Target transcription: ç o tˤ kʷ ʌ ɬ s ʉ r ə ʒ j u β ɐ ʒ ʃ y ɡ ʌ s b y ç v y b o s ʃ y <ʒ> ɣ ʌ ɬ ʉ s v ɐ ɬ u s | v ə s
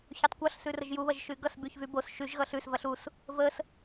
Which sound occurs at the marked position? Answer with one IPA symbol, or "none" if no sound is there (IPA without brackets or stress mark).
ʒ